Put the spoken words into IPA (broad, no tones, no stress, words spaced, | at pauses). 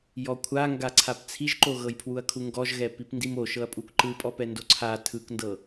jɔkʷʰaŋɡa ǀʰapt͡sʰiʒǃo ɣɤjpʰwuɐ̯kʰuŋɡɔʒ ɣɛpipndimo ʃɤɐ̯pʼukǃɯpʼɔ pɛndoǀʰa tʰɯkndɤ